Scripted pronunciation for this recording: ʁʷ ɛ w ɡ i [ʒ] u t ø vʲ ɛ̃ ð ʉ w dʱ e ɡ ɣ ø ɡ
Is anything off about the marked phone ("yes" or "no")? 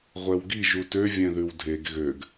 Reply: no